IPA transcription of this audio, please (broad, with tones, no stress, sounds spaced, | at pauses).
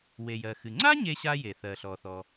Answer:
w e˩ j ɜ˩ x ɨ˩ ŋ͡ǀ a˥ ɲ e˥ ɕ a˥ j e˩ θ ɜ˩ ɬ ɔ˩ θ ɔ˩